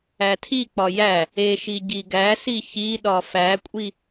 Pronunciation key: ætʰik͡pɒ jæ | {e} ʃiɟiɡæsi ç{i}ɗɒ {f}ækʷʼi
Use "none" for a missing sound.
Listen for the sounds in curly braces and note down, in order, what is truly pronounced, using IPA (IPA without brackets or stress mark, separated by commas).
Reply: e, i, f